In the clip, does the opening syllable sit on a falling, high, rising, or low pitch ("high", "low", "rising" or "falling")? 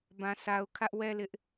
low